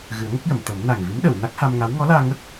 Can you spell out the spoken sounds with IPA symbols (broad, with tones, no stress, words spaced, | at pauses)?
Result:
ɣɨ˨˩˦ə̯ŋə˦˥k̚jə˨˩˨mt̪ə˨˩˦m na˨˩ŋvi˧˥mɗə˨˩˨w na˦˥k̚ha˧mŋa˧˥w ŋɔ˧˥laː˧ŋə˦˥k̚